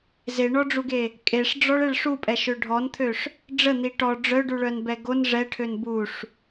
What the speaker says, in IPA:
z e ɳ ɔ ɖ͡ʐ u ɡ e | kʼ e ʂ ɖ͡ʐ ɔ ɭ e ɭ ʂ u pʼ ɛ ʃ ø ɖʱ ɔ n t̪ʰ ø ʂ | ɖ͡ʐ ə n̪ i ʈ ɔ ɖ͡ʐ œ ɖ u ɭ œ n b ɛ ɡ o n ʐ ɛ ʈʰ ø n b u ʂ

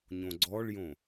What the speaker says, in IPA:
ɲ õ ɡ͡ǀ ɔ ɭ j õ

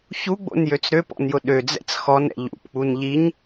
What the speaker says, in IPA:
ç u ɡ͡b o̰ n j ø t͡s ɾ ø p ɔ̰ n j ʊ ɗ ø d͡z ɛ̰ t͡s x ɔ n ɛ̰ ʎ ṵ p k͡p u n ʎ i ɲ

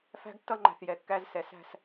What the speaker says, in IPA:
f æ̤˦ ɡ tː ʌ˦ ŋ͡ǃ æ̤˨ θ j ɛ˨ kː æ˦ z s ɛ˨ s æ̤˦˨ s

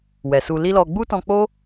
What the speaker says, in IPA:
w ɛ˨ s u˧ l i˦ l ɔ˧ ɡ͡b u˦ t ɔ̃˧ k͡p o˦

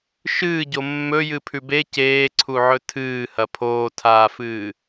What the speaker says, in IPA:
ʃ ɨː ɟ o mː ɵ j ɨ pʰ ʉ b e c eː ǀʰ u ʕ ɵ tʰ ɨː h ɐ pʰ oː tʰ aː f ɨː

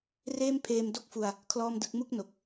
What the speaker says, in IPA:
r eː˥˩ m pʰ eː˧ m d o˥˩ k̚ f u˧ a̯ | kʰ l ɔː˥˩ m d ɯ˦˥ k̚ m u˥˩ k̚ n o˨˩ k̚

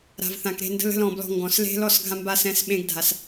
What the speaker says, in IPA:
ɾ a̤˨ v θ ã˨ k ɾ e̤˦˨ n d ə̤˦ l ə̤˦ l ɔ̃˨ b l ɔ̤˧ ŋ ɡ ɔ̃˨ s l e̤˦ l ɔ˦˨ s ɡʱ ã˧ m b a˧ s ɛ̃˨˦ s ɓ ẽ˧ ɡ dʱ a˨ s

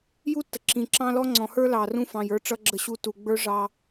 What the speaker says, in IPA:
j u˦ tː ə˨ ǁ ĩ˨ ǁ ɑ̃˦ l ɔ˦ ŋ͡ǀ ɔ̃˨ h ə˞˦ l ɑ˨ r ũ˦ f ɑ̃˨ j ə˞˦ ʈ͡ʂ ʌ˦ ɡ͡ǁ ə˦ ɕ u˦ t u˨ ɡ͡b ə˞˦ ʐ ɑ˦

